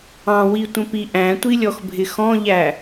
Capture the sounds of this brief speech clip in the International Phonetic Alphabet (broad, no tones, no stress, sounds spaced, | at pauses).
ɑ̃ w i tʷ ə̃ p i ʔ æ̃ tʷ i lʲ ɔ x bʱ ɪ x ɔ̃ ʎ æ